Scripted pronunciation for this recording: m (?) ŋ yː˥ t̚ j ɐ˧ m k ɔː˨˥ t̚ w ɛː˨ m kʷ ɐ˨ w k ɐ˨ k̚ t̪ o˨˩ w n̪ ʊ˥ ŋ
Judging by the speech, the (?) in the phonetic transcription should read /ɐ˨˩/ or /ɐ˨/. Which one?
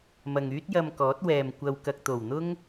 ɐ˨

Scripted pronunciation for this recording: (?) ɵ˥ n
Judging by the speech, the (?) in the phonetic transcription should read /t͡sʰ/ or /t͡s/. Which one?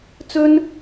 t͡s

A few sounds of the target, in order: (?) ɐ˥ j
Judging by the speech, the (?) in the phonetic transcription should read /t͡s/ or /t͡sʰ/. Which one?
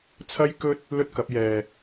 t͡sʰ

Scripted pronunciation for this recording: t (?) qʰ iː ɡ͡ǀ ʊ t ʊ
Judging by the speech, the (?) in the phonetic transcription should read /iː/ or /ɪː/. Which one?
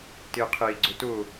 ɪː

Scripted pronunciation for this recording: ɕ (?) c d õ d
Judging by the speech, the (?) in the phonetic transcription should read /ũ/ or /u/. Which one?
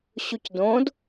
u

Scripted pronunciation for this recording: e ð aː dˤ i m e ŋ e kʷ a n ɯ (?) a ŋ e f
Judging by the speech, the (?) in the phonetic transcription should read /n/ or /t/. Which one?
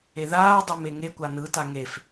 t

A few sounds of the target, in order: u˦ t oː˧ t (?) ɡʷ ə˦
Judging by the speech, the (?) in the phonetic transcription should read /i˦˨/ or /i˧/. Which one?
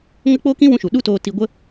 i˧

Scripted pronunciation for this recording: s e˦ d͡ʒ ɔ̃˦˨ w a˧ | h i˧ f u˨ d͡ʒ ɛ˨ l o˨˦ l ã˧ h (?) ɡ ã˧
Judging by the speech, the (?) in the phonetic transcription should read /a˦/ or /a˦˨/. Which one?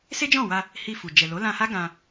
a˦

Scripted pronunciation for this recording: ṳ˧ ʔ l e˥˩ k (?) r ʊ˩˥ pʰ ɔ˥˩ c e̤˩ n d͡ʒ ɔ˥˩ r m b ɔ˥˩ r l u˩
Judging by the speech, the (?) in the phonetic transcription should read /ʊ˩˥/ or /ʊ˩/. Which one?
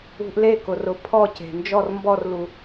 ʊ˩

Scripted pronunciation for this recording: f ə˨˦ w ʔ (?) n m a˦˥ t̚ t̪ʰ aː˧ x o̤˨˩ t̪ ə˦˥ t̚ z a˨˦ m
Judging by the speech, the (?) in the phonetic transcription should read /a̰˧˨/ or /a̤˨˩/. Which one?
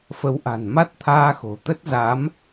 a̤˨˩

